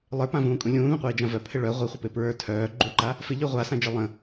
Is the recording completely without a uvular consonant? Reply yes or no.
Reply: no